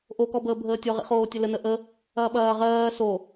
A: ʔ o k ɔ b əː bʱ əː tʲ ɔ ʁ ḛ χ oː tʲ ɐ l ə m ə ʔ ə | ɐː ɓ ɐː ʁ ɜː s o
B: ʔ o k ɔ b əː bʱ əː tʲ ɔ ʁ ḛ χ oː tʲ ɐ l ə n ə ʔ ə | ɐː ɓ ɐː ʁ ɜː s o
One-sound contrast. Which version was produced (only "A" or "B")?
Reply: B